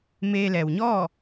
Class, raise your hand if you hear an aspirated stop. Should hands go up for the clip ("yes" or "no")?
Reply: no